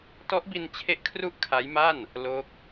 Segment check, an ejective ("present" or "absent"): absent